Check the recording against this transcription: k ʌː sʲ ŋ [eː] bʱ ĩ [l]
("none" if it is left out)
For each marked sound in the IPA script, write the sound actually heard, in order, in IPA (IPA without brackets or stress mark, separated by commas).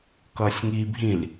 iː, l